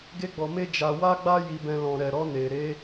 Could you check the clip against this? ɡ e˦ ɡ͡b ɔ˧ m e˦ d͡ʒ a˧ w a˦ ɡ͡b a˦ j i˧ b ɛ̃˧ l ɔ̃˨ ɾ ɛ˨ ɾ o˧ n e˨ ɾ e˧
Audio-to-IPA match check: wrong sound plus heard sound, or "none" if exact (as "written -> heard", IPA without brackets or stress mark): o˧ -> ɔ˧